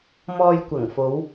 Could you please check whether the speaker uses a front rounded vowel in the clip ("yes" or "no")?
no